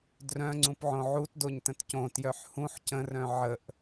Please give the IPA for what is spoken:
d r œ̃ ŋ͡ǀ ũ p ʕ õ ʕ u t d o ɲ t ə̃ t c õ t j œ ħ h ũ ħ c ə̃ r œ̃ ʕ ə ʔ

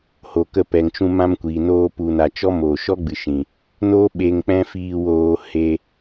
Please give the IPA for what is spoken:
h o˨ k ə˧ p ɛ˨ ŋ t͡ʃ ũ˧ m ã˧ m kʷ iː˨ n oː˧ p u˧ n a˧ t͡ʃ ɔ˦ m oː˨ ʃ ɔ˦ ɡ͡b ɨ˨ ʃ ĩ˨ | n oː˦ ɓ e˧ ŋ k͡p ɛ̃˦ f iː˧ w oː˧ h e˧

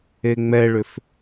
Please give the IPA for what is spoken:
e ŋ͡m ɛ ɭ ʏ f

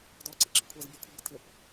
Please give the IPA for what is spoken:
d ɔ ǀ ɪ ǁ ɪ kʷʰ ɛ z bʲ ɔ kʷʰ ɪ b ɪ tʰ ɪ p

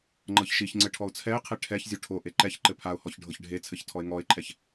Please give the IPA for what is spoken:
ŋ͡ǃ ɤ ç ʃ i ç ŋ͡ǀ ɘ ʈʰ ɔ ʊ̯ t͡sʰ ɛ ɪ̯ qʰ e ʈʰ ɛ ç zʲ o ʈʰ o ʔ e ǃ ɛ ç ǃ ɘ pʰ a ʊ̯ h ɔ ç ɖʱ ɤ ç ɖʱ e t͡sʰ ɘ ç tʰ ɔ ɪ̯ ŋ ɔ ɪ̯ ǃʰ ɛ ç

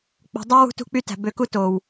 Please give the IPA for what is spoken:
k͡p o̤˨ dˤ æ˦ w ṳ˦ t ṳ˦ k͡p y˦ t æ̤˨ b ø˨˦ k u˦ t o˨ w

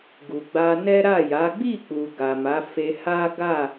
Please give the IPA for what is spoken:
ɡ u˨ ɡ͡b a˧ n ɛ˦ ɾ a˦˨ j a˨˦ ɡ͡b i˦˨ k͡p u˨ ɡ a˨ m a˨˦ f e˧ h a˦ ɡ a˦˨

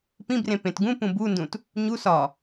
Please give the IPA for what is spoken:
p ĩ b r ẽ p ẽ t ɡ ũ p ũ b u n d ũ t | ɲ u s ɒ

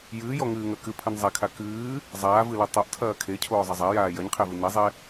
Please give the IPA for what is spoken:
j ɨː j ɔ ŋ ɨː ŋ ɐ k ɨ pʰ ɨ n zˤ ɛ kʰ a k ɨː | zˤ aː v ɨ l ɛ tˤ o ʔ tʰ ɐː kʰ e cʰ oː zˤ ɐ zˤ a j aː j ɐ ɲ qʰ e v ɨ n e zˤ e

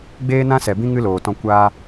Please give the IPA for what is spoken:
ɡ͡b eː˦ n ã˦ s ɛ˨ b ĩ˦ ŋ ɨ˦ l oː˨ t ɔ̃˧ kʷ aː˦

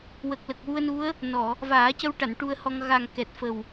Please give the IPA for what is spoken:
w ə˨˩ k̚ l ə˨˩ k̚ w u˧ ə̯ n u˧˥ ə̯ | n ɔ˨˩˨ | v aː˨˩˦ c ə˧ w ʈ a˨˩˨ n ʈ u˧ ə̯ h ɔ˧ ŋ ɣ a˨˩ ŋ k ɛ˨˩ t̚ f ə˨˩ w

